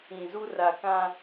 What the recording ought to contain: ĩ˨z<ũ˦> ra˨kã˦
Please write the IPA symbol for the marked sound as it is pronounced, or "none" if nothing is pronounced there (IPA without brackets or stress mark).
u˦